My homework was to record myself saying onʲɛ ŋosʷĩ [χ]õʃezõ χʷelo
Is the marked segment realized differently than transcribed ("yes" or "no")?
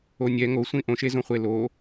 yes